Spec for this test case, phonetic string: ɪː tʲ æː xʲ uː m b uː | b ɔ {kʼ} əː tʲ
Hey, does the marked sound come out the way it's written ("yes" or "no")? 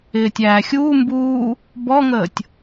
no